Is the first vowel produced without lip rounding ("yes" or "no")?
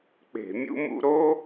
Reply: yes